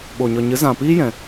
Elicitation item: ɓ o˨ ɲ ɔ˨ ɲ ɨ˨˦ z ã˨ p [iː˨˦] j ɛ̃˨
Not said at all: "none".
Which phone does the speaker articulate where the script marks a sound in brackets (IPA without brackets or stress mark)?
iː˦